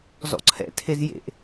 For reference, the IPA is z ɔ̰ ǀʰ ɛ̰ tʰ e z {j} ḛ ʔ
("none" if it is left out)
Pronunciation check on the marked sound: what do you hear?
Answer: j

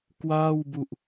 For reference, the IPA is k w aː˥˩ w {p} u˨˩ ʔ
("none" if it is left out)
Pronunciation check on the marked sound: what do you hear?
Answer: b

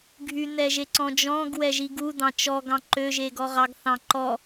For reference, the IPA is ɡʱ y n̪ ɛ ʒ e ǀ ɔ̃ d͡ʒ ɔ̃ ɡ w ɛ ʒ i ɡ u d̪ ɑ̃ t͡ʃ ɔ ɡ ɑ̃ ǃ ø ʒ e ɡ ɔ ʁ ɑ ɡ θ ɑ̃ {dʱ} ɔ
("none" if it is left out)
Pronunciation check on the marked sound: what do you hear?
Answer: ǃ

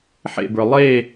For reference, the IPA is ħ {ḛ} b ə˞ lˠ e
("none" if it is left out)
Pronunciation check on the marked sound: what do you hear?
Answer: ḛ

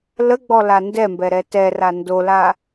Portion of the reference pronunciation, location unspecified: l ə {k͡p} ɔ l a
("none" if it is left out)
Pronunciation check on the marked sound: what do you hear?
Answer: ɡ͡b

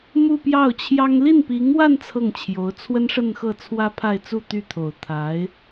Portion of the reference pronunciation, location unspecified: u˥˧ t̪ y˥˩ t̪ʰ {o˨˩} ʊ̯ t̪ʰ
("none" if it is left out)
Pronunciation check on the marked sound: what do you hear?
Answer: o˨˩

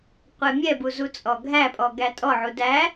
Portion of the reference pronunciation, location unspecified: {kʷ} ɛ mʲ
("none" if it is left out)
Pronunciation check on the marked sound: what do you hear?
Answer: qʷ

